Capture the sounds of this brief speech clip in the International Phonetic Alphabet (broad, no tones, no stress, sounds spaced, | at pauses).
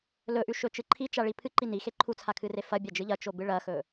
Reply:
l ɵ ʔ ʉ ʃ ɵ t͡ʃ ɨ ǃʰ i t͡ʃ a ɭ i pʰ ɨ ǃ i n i x e ǃʰ u t͡sʰ a kʰ ɨ r e f ɐ bʲ a d͡ʒ ɨ ʎ ɐ t͡ʃ o b ɨ ɭ ɐ x ɵ